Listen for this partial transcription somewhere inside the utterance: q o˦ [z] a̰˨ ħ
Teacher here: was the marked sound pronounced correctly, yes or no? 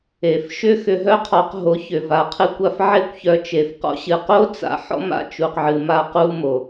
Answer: no